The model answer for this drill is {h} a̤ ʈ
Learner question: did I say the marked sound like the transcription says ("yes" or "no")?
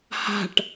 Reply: yes